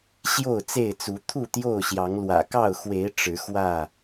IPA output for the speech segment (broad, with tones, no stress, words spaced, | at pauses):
ɕjo˥˨ʊ̯t͡se˥˨ɪ̯t͡su˨˦ t̪ʰu˥˨t̪jo˥˨ʊ̯ɕjɑ˨˦ŋ lwä̰˨˩kɑ˥˨ʊ̯xwe˨˦ɪ̯ ʈ͡ʂɻ̩˨˦xwä˥˨